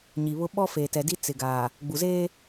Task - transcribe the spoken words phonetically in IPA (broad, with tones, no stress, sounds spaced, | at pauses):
ɲ i˨ β ʊ˦ ɓ ɔ˦ f eː˨ t ɛ˨ d i˦ t͡s ɪ˨ ɡ aː˨ | ɡ͡b u˨ z eː˦